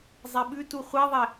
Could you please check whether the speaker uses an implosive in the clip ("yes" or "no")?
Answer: yes